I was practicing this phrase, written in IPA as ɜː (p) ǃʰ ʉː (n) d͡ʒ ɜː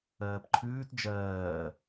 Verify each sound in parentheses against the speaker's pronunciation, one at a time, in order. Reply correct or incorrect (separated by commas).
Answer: correct, incorrect